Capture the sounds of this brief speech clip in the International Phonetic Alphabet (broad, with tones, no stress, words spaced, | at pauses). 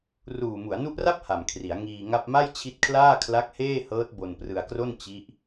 ruː˨˩mu˩˦a̯nu˦˥ʔra˥˩p̚ ha˨˩mkʰri˩˦a̯ ŋiː˧ŋa˥˩p̚ ma˥˩jt͡ɕʰi˦˥t̚kʰlaː˥˩ kʰla˦˥k̚heː˥˩hɤː˦˥t̚ bo˧n prɯ˧a̯kro˥˩n t͡ɕi˦˥ʔ